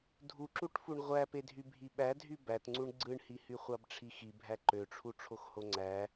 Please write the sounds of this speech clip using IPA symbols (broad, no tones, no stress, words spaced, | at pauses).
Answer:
dʱuǁuʈfuɳ ʁʷæpedʱy bʱiɓædʱy bætŋ͡ǀuɳ ɡ͡ǀɯɳhi hyχʷɑbʈ͡ʂʰixi bʱæǃøʈ͡ʂʰu ʈ͡ʂʰoxhoŋ͡ǀæ